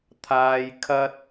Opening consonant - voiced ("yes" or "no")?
no